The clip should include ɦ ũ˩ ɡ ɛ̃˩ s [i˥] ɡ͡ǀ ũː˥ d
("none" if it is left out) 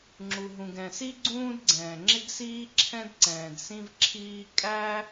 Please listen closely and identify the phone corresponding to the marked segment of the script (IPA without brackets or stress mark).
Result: i˥